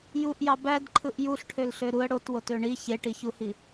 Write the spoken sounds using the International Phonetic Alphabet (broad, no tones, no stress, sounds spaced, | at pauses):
j u ʔ j ɑ b æ d ǃʰ ɯ ʔ j u ɬ ʈʰ ø l ɬ ø ɾ u ə̯ ɽ o t w o t ø ɳ i ç e ʈ i ç u h i